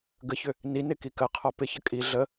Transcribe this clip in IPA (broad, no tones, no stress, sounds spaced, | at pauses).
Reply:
ɡ ə ç ʏ | n i n ɪ k i k ɜ qʰ ɔ p ɪ ç ə kʼ i ɮ ə